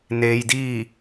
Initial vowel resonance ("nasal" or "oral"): oral